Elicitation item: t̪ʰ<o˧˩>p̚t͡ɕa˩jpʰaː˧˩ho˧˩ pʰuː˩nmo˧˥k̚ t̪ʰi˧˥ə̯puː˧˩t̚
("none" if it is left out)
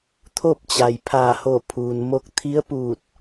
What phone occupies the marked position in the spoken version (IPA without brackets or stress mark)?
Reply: o˥˨